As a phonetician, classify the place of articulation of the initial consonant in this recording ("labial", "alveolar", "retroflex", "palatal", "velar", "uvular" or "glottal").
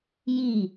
palatal